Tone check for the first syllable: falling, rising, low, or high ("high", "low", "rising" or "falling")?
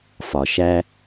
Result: low